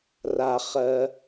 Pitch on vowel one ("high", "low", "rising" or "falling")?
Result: low